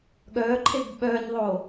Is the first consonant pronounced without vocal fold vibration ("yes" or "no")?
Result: no